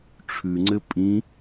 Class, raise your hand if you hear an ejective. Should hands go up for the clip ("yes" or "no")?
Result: yes